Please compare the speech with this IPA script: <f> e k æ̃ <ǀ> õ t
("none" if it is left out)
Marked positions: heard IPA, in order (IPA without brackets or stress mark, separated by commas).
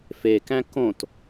f, k